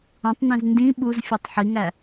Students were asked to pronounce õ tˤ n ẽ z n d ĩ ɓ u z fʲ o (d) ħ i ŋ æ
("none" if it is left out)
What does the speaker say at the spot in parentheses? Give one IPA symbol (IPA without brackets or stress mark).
tˤ